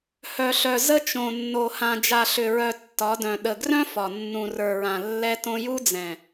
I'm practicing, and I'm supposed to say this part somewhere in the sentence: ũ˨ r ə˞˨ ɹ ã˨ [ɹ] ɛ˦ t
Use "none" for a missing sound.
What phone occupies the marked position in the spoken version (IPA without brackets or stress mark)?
lː